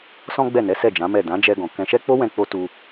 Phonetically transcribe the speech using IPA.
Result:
s ɔ̃˦ ɡ͡b ɛ˦˨ n ɛ˨˦ s ɛ˦˨ d͡ʒ ã˨˦ m ɛ˦˨ d ã˨˦ d͡ʒ ɛ˧ ɡ ɔ̃˨ k ɛ̃˧ ʃ ɛ˦ k͡p o˦ w ɛ̃˧ k͡p o˦ t u˧

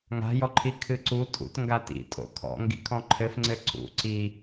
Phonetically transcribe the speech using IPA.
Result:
ŋ a̤ j ɔ ǃʰ i kʰ ɨ ǀ u tʼ ṵ t ŋ ɡ a t ḭ tʼ o̰ kʰ ɔ̰ ŋ ɡ ḭ kʰ ɔ̃ ǃʰ ɘ f ŋ͡ǀ ɘ ǀ ṵ ǀ i

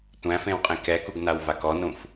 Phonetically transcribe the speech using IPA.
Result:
tʷ æ̃ f ẽ w qʼ ẽ k ɛ k u ɡ n a w v a k ɔ n ũ f

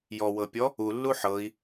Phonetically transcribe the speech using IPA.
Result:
j ɔ w ɤ pʲ ɔ | u lː u ħ ɤ i̯

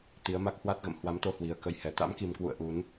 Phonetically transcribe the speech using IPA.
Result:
t̪ i˨˦ ə̯ m a˦˥ k̚ h w a˦˥ t̚ ɣ ə̰˧˨ m h w a˨˦ m t̪ o˧ h w i˨˩ ə̯ k ə˧ j h ɛ˨˩ t̪ a̰˧˥ m k i˨˩ m k w ṵ˧˨ ə̯ ʔ u˨˦ n

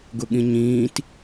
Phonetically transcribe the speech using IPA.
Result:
ɡ ʊ ɠ ĩ ɲ ĩː t

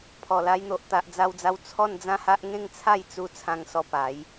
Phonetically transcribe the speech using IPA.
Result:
pʰ ɔ˨˩ l a˧ j n̪ o˨ ʔ t̪ a˨ ʔ d͡z a˧ w d͡z a˧ w t͡sʰ ɔ˥˧ n d͡z ã˦ h a˦ ʔ ŋ ẽ˥˧ ŋ t͡sʰ a˥˧ j t͡s u˧ t͡sʰ ã˧ ŋ s ɔ˧ p a˨˦ j

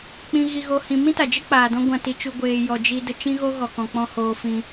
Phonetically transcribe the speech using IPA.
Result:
k͡p ĩ˧ ɣ i˧ ɣ o˧ h ĩ˧ m ĩ˦ t a˨ d͡ʒ ə˦ k͡p aː˨ d ɔ̃˦ ɡʷ ã˧ t i˧ t͡ʃ u˧ ɡʷ eː˧ j ɔ˧ d͡ʒ i˦ d ə˧ t͡ʃ ĩ˦ ɣ o˦ ɣ ɔ˧ k ɔ̃˧ k͡p ɔ̃˦ h oː˦ f ĩ˦

